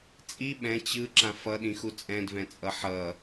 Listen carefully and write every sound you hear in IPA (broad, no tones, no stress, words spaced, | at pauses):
t͡sʼi ɓɛ̃ t͡ɕɯ ǁãfʌɗĩ xut͡sʼɛ̃dvɛ̃t͡sʼʌ ħʌ